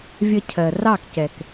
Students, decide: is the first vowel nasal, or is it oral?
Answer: oral